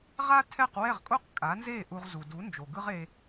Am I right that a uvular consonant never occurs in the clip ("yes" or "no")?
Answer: no